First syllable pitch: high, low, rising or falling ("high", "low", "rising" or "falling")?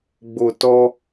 low